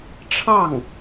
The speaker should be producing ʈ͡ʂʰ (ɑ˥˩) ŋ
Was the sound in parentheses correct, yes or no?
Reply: yes